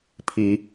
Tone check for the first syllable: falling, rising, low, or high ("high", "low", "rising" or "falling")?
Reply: low